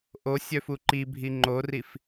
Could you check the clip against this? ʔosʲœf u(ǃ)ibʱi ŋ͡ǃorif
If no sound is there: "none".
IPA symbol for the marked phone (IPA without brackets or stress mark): ǃ